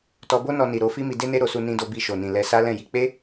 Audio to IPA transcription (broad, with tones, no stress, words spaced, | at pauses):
tɔ˧bo˦nɔ˧ni˨ ɾo˧ fi˦mi˧ de˦ne˦ ɾo˧su˧ nĩ˧do˧bi˧ʃo˨ nĩ˨lɛ˧ sa˦lɛ̃˦˨ji˧ k͡pe˦